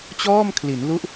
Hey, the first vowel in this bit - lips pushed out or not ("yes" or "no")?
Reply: yes